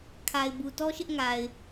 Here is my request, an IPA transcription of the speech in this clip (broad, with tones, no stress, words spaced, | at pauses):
kʰa˨ɪ̯ bu˨tɔ˦ʃɪ˦ʔ ŋa˨ɪ̯